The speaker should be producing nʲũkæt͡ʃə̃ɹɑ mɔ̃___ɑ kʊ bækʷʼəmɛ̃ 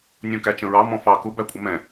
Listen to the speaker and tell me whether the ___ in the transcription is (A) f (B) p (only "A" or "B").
A